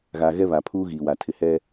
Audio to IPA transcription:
ɣ a˨ ɣ ɛ˦ β a˨ pʰ uː˦ ɣ iː˨ w a˨ tʰ ɪ˨ h ɛ˦

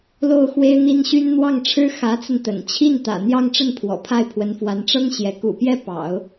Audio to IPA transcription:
l o˥˩ ʊ̯ x w e˥ ɪ̯ n̪ i˥ n ɕ y˥ n n̪ w ɑ˥˩ ŋ ʈ͡ʂʰ ɻ̩˥ x ä˧˥ t͡s ə˧ n t̪ ə̰˨˩ n t͡ɕʰ i˥˩ n t̪ ä̰˨˩ n̪ j ɑ˥˧ ŋ ʈ͡ʂ ə˥˩ n pʰ w ɔ̰˨˩ pʰ a˥˩ ɪ̯ pʰ w ə˧˥ n f w a˧˥ n ʈ͡ʂ ɤ˥ ŋ ɕ j ɛ˧˥ k ṵ˨˩ p j ɛ˥˩ p ɑ̰˨˩˦ ʊ̯

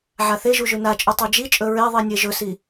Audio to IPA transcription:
ʕ a θ e ʒ u ʒ ʉ n a t͡ʃʼ ʉ tˤ ʉ d͡ʒ i t͡ʃʼ ɵ ɹ e ðˤ i nʲ e ʒ ɵ s i

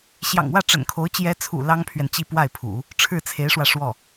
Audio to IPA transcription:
ɕ j ɑ̰˨˩ ŋ w ä˥˩ ʈ͡ʂ ə̰˨˩ n kʰ o˧˥ ʊ̯ t͡ɕ j ɛ˧˥ t͡sʰ ṵ˨˩ l ɑ˥ ŋ pʰ ɥ ɛ˨ n t͡ɕ i˥˧ p w a˥˩ ɪ̯ pʰ ṵ˨˩˦ | ʈ͡ʂʰ ɻ̩˥˩ t͡sʰ e˧˥ ɪ̯ ʂ w ä˧ ʂ w ɔ˥˩

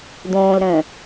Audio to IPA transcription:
d̪ õː l ɾ ə̃ː

